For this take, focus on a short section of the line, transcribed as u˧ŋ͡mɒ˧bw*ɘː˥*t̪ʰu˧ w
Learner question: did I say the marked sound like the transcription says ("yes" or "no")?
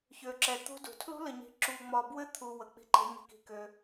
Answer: no